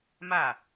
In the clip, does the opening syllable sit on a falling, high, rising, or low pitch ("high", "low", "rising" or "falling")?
falling